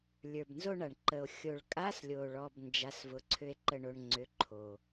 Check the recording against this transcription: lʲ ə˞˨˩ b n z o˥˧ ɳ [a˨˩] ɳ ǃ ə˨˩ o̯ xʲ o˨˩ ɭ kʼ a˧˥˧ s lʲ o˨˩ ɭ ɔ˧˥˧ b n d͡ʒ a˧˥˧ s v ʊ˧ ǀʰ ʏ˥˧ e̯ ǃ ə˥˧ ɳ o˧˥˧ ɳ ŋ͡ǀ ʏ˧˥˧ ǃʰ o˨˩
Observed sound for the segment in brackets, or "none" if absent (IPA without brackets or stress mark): a˨˩